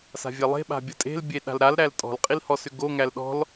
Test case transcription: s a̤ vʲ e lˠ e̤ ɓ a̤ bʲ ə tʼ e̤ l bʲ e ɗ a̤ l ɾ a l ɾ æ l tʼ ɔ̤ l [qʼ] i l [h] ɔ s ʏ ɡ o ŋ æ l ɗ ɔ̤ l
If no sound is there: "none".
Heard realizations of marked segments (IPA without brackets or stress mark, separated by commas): qʼ, h